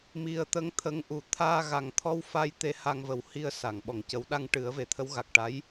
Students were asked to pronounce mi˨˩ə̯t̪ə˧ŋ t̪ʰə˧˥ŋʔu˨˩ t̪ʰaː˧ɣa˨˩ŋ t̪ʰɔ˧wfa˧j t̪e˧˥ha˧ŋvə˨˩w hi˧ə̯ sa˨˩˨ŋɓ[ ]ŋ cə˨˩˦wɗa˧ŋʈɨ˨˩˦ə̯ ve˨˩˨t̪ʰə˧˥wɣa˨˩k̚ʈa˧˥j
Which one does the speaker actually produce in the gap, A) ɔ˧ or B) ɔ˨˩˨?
B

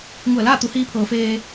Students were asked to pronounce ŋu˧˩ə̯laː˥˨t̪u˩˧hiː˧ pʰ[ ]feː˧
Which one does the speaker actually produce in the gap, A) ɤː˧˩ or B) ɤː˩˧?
B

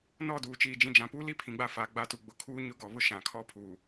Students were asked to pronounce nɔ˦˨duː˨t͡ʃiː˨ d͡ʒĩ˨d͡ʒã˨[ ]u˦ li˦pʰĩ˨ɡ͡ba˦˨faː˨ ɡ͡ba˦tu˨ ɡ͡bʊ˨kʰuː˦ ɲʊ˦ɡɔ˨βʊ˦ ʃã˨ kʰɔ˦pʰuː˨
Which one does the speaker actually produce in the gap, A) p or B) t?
A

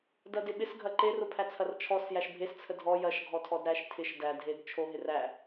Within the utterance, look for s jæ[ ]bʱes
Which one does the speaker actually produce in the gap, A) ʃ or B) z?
A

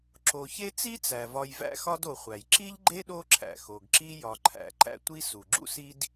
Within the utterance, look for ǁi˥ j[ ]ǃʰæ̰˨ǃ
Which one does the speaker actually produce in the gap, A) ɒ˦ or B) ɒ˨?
B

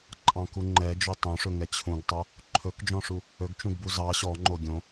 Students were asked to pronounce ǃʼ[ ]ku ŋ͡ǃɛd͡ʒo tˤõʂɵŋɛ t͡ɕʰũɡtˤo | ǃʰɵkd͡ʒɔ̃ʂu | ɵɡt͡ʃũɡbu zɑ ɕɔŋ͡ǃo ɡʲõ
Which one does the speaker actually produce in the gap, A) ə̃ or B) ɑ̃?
B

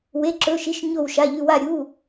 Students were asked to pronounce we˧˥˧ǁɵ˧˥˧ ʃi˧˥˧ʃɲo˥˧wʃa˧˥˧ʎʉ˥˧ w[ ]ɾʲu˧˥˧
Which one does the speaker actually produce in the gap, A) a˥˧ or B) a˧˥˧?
A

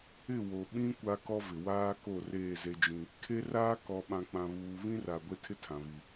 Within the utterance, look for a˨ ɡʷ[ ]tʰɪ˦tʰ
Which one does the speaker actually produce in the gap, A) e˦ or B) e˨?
A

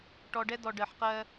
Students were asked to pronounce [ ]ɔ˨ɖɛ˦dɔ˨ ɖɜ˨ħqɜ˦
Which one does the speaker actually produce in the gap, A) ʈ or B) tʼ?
A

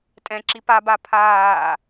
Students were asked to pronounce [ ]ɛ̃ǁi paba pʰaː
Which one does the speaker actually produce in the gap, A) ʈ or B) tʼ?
B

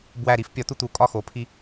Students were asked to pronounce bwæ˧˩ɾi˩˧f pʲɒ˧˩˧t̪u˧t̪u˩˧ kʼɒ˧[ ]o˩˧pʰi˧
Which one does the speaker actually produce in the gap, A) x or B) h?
A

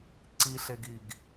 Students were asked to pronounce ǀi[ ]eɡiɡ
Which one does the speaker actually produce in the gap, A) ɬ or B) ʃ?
A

